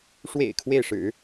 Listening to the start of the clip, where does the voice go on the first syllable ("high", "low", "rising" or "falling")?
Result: low